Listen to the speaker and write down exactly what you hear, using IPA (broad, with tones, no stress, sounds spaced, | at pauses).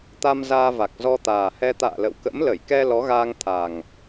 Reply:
t̪ a˧ m z aː˧ v a˨˩ k̚ z ɔ˧ t̪ aː˨˩ h ɛ˧ t̪ a̰ː˧˨ l ə̰˧˨ w k ə̰˧˥ m l ə˧˩ j k ɛ˧ l ɔ˨˦ ɣ aː˧ ŋ t̪ʰ a˨˩ ŋ